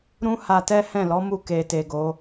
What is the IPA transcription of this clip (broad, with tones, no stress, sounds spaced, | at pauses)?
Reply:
ɾ ũ˦ h a˧ t ɛ˦ h ɛ̃˦˨ l ɔ˨˦ m u˧ k e˨ t e˨ ɡ o˨˦